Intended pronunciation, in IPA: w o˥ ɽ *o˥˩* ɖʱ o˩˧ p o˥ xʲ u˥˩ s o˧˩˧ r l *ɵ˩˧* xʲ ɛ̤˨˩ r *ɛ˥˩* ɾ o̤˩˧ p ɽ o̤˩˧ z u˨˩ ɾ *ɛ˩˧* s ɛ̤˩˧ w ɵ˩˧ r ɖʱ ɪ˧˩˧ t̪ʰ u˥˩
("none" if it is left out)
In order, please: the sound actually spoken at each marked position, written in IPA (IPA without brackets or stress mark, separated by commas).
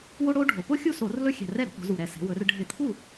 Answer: o˥, ɵ˥, ɛ˥˩, ɛ˨˩